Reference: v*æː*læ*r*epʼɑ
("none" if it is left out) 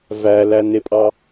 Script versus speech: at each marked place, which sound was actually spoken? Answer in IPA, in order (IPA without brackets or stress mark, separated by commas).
æ, n